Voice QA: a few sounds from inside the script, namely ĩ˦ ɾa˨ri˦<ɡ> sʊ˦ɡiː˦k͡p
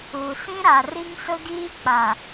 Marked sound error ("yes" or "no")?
yes